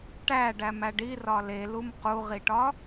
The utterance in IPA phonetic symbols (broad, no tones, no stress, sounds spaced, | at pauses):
ʈ æ ɖ æ m æ ɖ i r ɒ l e l u m q u ʁ i ʈ ɒ